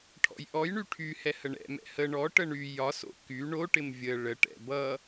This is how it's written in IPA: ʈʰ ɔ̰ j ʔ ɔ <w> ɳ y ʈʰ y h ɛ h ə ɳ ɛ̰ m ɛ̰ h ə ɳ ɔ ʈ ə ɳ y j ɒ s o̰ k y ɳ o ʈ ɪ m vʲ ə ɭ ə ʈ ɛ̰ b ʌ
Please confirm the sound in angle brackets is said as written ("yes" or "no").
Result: no